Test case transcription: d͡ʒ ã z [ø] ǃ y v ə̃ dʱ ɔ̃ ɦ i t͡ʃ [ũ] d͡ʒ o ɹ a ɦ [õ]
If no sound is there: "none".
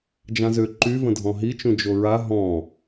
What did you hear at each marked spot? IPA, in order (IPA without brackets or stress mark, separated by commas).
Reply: ø, ũ, ɔ̃